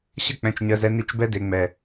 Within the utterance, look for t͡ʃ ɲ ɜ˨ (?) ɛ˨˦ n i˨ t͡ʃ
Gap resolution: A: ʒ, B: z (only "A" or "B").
B